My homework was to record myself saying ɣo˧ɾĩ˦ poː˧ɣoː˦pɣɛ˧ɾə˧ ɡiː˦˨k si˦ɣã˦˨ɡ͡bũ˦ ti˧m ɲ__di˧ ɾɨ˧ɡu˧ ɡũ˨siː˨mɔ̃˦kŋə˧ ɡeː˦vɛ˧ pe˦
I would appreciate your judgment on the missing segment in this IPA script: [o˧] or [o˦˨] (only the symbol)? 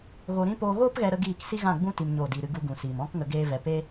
o˦˨